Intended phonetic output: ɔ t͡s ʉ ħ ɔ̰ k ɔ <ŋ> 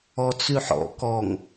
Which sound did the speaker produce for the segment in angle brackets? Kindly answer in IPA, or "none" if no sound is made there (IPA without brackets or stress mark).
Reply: ŋ